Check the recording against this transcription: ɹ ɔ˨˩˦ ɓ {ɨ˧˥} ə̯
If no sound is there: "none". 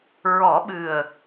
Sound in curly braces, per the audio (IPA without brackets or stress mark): ɨ˨˩